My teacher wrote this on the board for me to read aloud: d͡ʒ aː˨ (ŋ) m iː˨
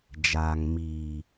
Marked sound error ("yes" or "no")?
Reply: no